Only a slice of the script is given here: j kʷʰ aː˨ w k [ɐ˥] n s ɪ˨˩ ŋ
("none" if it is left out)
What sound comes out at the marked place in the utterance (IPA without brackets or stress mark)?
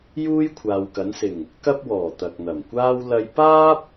ɐ˨˥